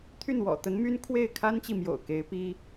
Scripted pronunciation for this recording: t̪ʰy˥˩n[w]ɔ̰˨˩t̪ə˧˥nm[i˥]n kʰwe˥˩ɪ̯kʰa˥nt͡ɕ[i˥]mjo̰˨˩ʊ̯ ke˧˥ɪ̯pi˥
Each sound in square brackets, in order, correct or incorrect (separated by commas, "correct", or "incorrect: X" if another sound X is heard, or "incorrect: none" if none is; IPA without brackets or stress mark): correct, incorrect: y˥, incorrect: i˨